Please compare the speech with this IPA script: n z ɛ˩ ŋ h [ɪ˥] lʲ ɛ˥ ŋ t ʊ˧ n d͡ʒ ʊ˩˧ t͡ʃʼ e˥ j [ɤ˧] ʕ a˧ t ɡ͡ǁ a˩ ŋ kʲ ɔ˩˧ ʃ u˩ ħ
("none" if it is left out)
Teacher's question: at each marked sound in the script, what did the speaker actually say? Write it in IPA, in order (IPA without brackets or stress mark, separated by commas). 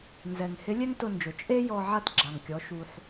ɪ˧˥, ɔ˧